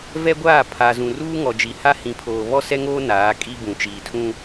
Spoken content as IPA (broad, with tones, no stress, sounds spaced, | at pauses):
v ɛ˦ ɡʷ aː˦˨ pʰ a˨ z ũ˨ r uː˦ ŋ ɔ˨ d͡ʒ i˨ h a˦ h ĩ˨˦ pʰ oː˨ β ɔ˦ s ɛ˦ ŋ oː˦ n aː˨˦ kʼ i˦ b ũ˨ t͡ʃ iː˨ tʰ ũ˦